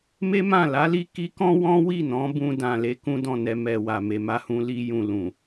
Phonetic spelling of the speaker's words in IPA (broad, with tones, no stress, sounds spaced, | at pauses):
m e˦ m ã˦˨ l a˨˦ l i˧ k i˧ k ɔ̃˦ w ɔ̃˦ w i˦˨ n ɔ̃˨˦ b ũ˧ d ã˨ l e˧ k ũ˧ d ɔ̃˨ n ɛ˨ m ɛ˨ w a˨ m e˨ m a˧ h ũ˧ l i˦ j ũ˧ l ũ˨